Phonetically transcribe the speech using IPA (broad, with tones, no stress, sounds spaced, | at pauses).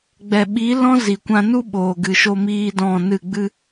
ɡ͡b ɛ˨ ɓ i˨˦ l ɔ̃˦ z i˨ kʷ ã˧ n u˦ ɓ oː˨ ɡ ɨ˨ ʃ o˧ m iː˦ d ɔ̃˦˨ n ɨ˦˨ ɡ͡b ɨ˦